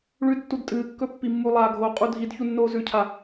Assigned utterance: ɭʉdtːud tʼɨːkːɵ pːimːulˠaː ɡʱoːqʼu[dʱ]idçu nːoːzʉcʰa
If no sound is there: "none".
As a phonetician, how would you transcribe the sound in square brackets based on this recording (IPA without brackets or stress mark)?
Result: dʱ